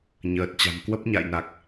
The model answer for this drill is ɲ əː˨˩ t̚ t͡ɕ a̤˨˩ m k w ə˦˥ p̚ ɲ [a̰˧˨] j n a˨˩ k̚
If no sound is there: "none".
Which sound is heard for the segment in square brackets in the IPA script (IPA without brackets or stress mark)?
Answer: a̰˧˨